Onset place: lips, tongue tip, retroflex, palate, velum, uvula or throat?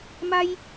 lips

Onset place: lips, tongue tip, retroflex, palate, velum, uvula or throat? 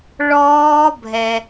retroflex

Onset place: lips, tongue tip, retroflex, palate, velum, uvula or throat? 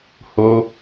throat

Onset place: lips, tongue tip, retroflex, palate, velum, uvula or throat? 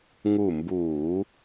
velum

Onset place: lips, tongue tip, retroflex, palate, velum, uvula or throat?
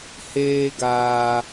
throat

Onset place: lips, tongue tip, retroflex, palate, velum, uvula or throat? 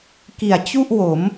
velum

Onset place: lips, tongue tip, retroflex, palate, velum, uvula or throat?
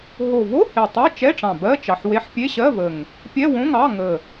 throat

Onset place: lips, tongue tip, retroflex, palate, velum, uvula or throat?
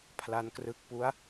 lips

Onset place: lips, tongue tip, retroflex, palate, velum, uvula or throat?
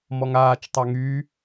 lips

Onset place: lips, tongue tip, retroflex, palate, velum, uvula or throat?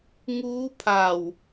velum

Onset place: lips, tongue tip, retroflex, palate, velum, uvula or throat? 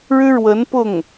retroflex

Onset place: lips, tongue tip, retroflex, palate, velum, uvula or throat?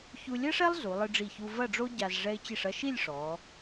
palate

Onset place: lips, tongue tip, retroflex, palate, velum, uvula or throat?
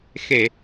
velum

